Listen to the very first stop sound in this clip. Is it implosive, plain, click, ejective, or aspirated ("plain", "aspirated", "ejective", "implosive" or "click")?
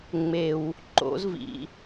click